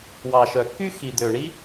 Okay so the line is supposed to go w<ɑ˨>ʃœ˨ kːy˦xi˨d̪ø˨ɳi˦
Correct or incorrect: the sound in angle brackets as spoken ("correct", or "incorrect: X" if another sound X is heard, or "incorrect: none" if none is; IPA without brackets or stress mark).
correct